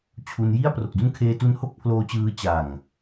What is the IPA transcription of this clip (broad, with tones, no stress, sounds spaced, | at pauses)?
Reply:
t͡ɕʰ u˧ n j i˥˩ a̯ p r o˨˩ k̚ d u˦˥ n kʰ eː˧ t u˧ n h o˥˩ k̚ pʰ l oː˦˥ t͡ɕ ɯː˦˥ t͡ɕ a˨˩ ŋ